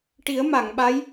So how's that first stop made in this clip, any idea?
plain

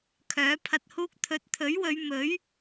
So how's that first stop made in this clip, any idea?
aspirated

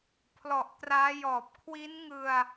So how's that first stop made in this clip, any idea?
aspirated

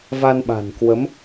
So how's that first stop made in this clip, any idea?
implosive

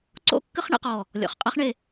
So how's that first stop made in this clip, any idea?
click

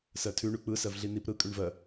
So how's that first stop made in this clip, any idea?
aspirated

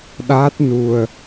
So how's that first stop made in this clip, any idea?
implosive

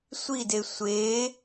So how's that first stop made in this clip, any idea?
plain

